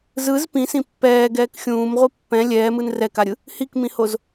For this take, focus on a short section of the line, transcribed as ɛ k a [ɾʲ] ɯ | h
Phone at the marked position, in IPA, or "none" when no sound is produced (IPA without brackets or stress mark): ɾʲ